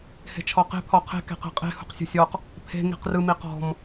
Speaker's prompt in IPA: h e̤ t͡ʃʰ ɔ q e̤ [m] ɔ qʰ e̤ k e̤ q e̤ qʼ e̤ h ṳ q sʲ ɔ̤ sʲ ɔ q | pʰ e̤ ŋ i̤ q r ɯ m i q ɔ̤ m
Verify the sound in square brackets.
incorrect: pʰ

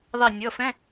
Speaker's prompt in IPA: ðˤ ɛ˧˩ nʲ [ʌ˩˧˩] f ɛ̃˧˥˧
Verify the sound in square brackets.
correct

